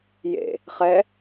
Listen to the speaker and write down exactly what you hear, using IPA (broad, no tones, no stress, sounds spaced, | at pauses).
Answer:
j ḛ | χ ɛ